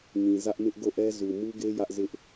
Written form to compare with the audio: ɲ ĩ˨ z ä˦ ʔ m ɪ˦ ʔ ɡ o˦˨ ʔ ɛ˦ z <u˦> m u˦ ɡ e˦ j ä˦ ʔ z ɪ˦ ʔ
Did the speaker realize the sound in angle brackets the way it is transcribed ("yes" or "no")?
no